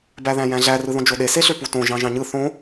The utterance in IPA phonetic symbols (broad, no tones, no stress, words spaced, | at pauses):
bæðæ̃jæ̃ɮæ rɯðõd͡ʒoɗe seɬøputõ ʒɑ̃ʒɑ̃ɲɯ θõ